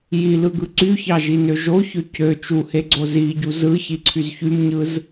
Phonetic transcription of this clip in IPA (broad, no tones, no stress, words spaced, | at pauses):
jilɯɡɯ ǀyçɑʒinø ʒoçø cø t͡ʃuheɡ͡ǀo ziɟu zɯçiǀʰyz çymɲɯz